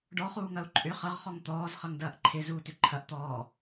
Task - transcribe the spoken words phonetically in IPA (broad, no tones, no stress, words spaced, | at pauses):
ɖɔχuːŋɐu̯ ǃʼʏ χɐʁχɔŋ t̪ɔːzχɐŋdɐːʔ ǃʰɪzuːtʏ ǃʰɐʔt̪ɔː